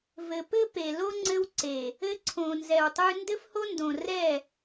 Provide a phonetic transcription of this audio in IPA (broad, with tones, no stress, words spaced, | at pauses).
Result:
vɘ˨pɘ˦pe˨lo˦ ŋ͡ǀɘ˦wǀe˨ | ɘ˦ǀʰõ˨nzɛ˨wtˤʉ˦ ndɘ˦fho˦ndõ˨rɛ˦˨